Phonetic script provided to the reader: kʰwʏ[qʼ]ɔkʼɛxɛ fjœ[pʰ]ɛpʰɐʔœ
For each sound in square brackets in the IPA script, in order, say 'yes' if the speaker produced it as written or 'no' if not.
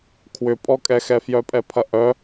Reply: no, no

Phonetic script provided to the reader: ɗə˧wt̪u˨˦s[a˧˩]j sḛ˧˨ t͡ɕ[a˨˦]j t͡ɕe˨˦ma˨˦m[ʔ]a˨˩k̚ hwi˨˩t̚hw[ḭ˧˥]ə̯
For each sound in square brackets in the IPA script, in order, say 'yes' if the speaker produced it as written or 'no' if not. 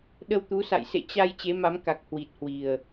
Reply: no, no, no, no

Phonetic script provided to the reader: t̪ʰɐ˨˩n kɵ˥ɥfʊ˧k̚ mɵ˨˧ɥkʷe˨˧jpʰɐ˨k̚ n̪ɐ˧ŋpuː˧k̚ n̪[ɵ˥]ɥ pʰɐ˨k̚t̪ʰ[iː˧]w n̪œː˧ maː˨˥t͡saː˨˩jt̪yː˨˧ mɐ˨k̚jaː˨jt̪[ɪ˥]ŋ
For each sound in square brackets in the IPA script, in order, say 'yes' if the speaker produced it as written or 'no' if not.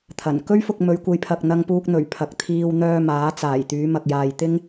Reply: no, yes, yes

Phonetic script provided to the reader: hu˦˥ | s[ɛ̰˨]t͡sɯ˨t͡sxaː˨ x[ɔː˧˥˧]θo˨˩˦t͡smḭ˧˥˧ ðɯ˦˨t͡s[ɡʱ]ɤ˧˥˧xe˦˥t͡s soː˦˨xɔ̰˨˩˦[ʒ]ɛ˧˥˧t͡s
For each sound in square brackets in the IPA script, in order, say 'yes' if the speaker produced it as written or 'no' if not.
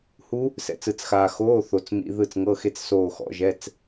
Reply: no, no, no, yes

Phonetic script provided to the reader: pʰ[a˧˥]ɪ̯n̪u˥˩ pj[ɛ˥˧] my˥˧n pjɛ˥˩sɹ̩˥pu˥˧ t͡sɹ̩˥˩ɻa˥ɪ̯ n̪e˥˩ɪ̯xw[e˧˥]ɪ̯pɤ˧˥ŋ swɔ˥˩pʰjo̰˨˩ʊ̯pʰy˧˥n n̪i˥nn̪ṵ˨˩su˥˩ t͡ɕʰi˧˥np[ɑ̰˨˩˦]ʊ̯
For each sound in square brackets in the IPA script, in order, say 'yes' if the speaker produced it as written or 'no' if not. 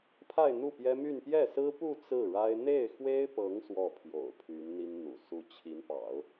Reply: no, no, no, yes

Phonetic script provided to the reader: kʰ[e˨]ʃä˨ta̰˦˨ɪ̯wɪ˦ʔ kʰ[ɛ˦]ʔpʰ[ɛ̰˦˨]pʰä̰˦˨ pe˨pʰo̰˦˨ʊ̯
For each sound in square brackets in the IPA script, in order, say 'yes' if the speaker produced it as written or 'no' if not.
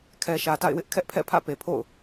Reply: no, yes, yes

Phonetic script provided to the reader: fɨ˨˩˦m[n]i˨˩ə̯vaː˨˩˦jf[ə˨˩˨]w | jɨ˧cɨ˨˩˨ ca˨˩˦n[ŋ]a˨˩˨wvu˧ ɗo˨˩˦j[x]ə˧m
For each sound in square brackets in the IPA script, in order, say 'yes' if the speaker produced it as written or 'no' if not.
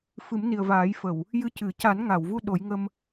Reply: yes, yes, yes, no

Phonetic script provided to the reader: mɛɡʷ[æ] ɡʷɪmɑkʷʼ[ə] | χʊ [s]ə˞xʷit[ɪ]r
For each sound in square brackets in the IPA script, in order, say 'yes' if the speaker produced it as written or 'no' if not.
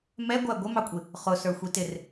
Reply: yes, no, yes, yes

